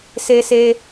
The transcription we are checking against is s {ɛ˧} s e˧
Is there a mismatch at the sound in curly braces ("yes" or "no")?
yes